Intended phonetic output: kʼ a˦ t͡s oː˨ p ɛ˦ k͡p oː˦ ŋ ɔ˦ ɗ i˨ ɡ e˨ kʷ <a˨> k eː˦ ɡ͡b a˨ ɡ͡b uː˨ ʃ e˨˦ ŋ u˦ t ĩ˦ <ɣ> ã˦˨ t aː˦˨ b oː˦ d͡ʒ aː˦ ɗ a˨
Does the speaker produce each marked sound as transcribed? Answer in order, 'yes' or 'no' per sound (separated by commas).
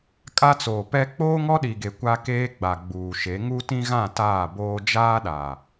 no, yes